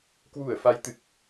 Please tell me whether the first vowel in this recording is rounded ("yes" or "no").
yes